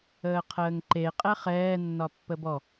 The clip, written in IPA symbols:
əː qʰ əː ŋ ǃ e qʼ ɛ χ ɛː nː ɒ pː ə b ɔ

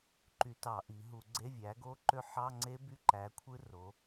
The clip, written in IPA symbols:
ǃ y˧˩˧ t ɑ˧˩˧ ʔ i˩˧ ɦ u˧˩˧ ɡ͡ǀ e˧˥˧ vʲ æ˩˥ ɡ o˦˥ ǃ ø˦˥ ħ ɑ˧˥˧ ŋ͡ǀ e˦˥ b y˦˥ ǃ æ˩˥ kʷʰ ɯ˦˥ r o˩˧

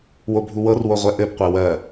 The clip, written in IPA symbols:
w o bʱ u w ɤ r w o ʁʷ ɛ ʔ ɘ b qʷ ɛ w ɜ

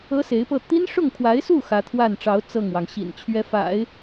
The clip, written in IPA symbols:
ɤ˥ s e˧˥ ɪ̯ p ɤ˥˩ t̪ i˥ n ʂ ʊ˥˩ ŋ kʰ w a˧˥ ɪ̯ s u˥˩ x ä˧˥ t̪ʰ w a˥˩ n ʈ͡ʂ ɑ˧˥ ʊ̯ t͡s ɤ˥˩ ŋ w ɑ˩ ŋ ɕ ḭ˨˩ n t͡ɕʰ ɥ ɛ˧˥ f a̰˨˩˦ ɪ̯

